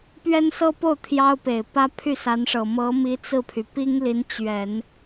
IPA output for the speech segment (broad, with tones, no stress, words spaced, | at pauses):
pɥɛ˥nsɤ˥po˥˩ʊ̯ t̪ʰjɑ˥ʊ̯pe˨˩ɪ̯ pä˥ pʰy˥˩sa˧˥nʂɤ˨˩ mɤ˧˥mi˧˥ t͡sɹ̩˥˩pʰy˩ pi˥ŋli˧˥n t͡ɕɥɛ˨˩˦n